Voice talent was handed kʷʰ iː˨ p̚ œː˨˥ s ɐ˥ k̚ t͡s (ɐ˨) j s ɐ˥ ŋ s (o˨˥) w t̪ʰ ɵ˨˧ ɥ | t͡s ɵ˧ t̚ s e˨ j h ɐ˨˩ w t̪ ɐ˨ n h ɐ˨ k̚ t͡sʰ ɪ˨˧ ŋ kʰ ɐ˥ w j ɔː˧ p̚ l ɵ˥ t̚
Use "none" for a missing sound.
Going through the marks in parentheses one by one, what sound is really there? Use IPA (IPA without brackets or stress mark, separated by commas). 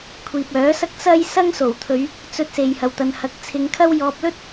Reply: ɐ˥, o˨˩